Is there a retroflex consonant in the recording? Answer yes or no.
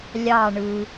yes